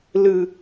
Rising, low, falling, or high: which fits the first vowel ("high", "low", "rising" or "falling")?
low